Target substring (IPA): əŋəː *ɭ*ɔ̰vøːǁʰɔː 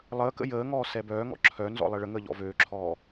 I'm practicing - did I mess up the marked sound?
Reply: yes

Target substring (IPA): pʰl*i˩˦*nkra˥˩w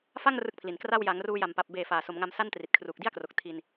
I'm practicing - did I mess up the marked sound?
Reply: no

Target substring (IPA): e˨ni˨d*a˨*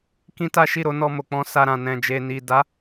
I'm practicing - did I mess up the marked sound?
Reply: yes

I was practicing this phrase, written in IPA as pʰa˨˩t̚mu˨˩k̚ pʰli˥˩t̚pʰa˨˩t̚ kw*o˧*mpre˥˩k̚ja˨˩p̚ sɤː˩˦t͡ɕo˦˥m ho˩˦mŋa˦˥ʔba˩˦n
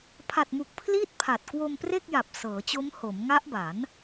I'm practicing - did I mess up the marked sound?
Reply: no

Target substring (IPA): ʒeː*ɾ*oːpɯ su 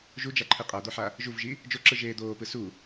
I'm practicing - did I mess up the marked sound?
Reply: yes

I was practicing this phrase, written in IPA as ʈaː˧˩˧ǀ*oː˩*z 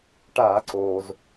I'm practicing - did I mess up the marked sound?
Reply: no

